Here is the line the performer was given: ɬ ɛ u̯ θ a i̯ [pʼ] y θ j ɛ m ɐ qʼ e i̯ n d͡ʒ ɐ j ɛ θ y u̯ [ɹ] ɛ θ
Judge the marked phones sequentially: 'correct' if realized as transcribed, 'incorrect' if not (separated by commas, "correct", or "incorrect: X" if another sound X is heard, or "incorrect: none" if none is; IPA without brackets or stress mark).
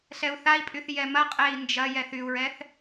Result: correct, correct